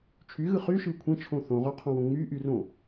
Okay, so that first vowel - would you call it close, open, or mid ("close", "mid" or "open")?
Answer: close